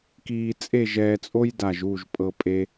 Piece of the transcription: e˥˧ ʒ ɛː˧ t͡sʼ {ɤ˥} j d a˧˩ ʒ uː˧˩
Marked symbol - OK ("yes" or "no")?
no